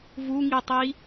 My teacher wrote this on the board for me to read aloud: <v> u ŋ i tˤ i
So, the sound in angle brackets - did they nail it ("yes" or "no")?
yes